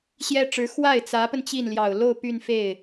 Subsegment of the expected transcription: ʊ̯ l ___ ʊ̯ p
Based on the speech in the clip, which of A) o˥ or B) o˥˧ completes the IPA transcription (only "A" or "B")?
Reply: B